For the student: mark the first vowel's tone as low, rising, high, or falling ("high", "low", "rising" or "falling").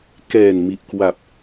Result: low